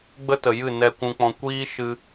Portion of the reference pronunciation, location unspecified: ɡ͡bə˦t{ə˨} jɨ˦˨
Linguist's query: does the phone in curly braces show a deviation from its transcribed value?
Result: no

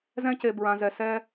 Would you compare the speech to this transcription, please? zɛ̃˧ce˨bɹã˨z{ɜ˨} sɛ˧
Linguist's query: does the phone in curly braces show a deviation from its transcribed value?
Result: yes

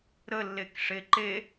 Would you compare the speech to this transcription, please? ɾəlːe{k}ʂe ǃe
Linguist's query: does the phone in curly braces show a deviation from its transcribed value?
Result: no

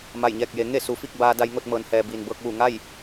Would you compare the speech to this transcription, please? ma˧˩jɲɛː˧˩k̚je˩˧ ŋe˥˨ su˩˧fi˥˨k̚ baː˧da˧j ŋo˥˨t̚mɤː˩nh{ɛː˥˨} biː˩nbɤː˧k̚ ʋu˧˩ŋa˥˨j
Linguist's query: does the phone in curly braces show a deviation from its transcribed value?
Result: yes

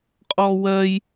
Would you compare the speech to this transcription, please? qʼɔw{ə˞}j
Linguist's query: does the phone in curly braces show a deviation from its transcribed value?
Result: yes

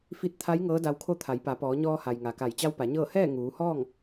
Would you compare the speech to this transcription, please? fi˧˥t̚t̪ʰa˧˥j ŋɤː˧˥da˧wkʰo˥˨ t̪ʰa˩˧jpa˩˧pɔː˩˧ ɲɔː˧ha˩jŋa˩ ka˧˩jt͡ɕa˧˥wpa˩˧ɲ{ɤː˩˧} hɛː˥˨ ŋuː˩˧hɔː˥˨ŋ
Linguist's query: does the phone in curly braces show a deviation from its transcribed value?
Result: yes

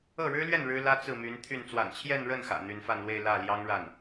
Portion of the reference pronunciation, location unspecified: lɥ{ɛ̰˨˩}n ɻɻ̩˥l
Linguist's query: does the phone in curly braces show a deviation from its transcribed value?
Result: yes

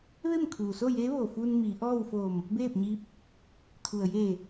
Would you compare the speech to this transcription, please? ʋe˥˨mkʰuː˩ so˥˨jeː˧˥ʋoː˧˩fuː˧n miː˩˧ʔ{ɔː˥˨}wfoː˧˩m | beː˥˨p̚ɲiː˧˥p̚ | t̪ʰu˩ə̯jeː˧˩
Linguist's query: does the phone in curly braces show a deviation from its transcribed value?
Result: no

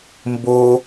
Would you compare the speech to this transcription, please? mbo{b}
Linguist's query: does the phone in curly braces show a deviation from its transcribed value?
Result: yes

